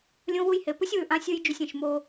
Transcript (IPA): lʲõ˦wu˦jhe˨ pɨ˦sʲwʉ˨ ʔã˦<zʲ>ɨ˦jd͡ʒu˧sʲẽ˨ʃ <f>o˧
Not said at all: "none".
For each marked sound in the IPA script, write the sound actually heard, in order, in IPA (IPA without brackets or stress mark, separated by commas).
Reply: sʲ, m